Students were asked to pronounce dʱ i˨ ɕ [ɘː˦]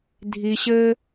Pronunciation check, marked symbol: correct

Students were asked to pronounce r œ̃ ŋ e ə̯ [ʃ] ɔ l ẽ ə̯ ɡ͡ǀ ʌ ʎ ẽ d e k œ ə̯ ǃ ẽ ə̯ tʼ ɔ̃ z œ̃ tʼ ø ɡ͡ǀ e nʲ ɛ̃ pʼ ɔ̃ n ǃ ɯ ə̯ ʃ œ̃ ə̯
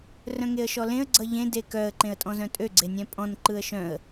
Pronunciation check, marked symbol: correct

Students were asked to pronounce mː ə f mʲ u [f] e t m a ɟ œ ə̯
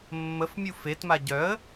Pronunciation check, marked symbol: correct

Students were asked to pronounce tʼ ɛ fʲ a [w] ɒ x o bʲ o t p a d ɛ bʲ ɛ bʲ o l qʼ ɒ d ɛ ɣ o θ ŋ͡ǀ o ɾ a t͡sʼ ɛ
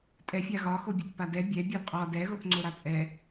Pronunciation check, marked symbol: incorrect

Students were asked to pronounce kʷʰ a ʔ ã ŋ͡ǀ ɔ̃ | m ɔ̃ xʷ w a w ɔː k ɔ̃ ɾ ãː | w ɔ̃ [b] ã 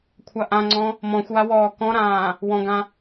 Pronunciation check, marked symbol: incorrect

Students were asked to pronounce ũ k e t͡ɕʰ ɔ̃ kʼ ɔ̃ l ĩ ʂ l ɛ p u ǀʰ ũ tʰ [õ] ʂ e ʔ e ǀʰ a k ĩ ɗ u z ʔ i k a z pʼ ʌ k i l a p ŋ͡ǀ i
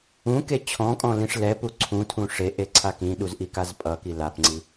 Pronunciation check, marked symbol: incorrect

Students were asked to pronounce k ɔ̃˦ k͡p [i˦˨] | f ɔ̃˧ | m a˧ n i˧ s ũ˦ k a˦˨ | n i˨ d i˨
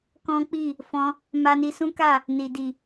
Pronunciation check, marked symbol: correct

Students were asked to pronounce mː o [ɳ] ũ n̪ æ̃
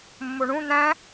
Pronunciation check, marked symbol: correct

